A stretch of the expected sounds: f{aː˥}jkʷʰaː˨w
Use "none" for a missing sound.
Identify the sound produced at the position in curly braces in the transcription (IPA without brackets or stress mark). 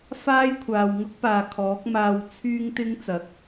aː˥